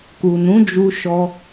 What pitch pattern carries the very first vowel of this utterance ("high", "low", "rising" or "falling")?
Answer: low